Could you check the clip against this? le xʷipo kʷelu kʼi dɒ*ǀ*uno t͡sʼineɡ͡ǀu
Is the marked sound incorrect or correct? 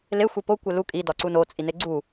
correct